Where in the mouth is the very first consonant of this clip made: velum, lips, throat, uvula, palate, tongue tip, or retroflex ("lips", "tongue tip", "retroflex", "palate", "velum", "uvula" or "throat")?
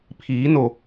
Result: lips